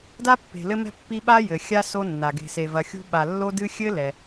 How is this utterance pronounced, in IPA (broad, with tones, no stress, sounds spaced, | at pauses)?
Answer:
d a˥ pː e̤˨ l ɘ˦ m ɛ̤˦ pː i˦ ɓ a˥ j ɘ˩ xʲ a˥ s o˦ nː a˩ ɡ e̤˨ s e˨ v ɐ˨ xʲ ṳ˦ ɓ a˨ lː o˥ d ɨ˥ xʲ ɘ˥ l ɛ˩